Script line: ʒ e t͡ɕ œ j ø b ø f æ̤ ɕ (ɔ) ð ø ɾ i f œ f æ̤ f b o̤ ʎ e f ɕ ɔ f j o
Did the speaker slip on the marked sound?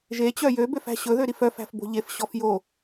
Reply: yes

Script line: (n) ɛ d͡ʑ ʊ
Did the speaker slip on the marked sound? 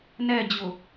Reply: no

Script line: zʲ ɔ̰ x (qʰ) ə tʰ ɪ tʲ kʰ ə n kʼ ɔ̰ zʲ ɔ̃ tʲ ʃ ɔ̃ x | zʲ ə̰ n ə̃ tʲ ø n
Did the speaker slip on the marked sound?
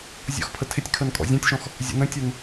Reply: yes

